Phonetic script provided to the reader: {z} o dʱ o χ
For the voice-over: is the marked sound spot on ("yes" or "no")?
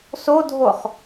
no